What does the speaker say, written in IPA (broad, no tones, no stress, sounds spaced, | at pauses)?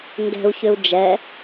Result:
ŋ ɡ ɛ̤ u̯ ç ʏ u̯ d͡ʒ ɛ